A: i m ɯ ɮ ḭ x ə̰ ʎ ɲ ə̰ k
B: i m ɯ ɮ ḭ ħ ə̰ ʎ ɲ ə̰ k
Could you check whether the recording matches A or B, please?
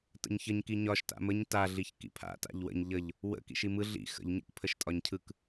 A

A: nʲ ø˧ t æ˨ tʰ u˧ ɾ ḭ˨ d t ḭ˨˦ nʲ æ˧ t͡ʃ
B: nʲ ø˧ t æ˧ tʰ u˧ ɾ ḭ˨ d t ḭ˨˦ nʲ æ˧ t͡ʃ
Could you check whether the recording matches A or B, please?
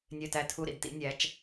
B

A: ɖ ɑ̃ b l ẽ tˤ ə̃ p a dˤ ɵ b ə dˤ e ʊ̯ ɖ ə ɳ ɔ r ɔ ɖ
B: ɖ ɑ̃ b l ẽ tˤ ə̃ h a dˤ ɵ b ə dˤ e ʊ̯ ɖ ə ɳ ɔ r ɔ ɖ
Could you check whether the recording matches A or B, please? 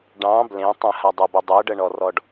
B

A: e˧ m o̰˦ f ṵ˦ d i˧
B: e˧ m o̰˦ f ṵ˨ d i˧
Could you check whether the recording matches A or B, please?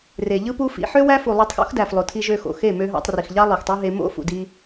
B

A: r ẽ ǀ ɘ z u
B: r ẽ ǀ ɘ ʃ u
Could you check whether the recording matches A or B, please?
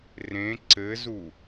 A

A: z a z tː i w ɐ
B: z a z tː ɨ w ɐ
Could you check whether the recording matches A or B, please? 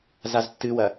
B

